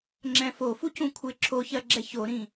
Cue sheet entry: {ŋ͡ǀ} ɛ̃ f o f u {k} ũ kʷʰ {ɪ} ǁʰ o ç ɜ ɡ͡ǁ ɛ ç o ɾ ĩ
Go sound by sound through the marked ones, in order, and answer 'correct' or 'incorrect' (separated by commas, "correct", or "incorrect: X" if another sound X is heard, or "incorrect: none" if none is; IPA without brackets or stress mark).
incorrect: ŋ͡ǁ, incorrect: c, correct